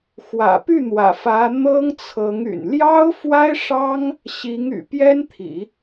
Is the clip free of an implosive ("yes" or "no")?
yes